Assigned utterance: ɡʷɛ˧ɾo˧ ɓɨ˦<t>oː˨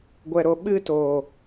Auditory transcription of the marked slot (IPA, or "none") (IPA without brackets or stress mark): t